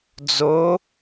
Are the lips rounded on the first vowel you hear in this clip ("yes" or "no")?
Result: yes